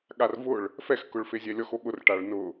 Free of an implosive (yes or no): no